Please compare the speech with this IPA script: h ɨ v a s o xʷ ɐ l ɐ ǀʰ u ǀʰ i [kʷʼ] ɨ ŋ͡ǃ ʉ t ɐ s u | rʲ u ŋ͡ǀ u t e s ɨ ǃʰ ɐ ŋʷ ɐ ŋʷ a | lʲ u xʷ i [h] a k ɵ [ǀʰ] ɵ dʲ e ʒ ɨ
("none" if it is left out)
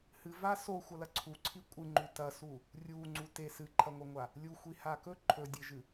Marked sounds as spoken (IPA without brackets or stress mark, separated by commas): kʷʼ, h, ǃʰ